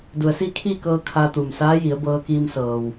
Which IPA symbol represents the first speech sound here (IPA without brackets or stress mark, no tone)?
d